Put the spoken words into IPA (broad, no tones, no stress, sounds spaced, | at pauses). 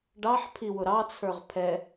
ɖ ɑ ħ pʰ i w ʊ ɾ ɑ t͡sʰ ə˞ ʁ pʰ ɛ